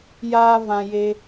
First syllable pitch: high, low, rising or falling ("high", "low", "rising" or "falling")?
high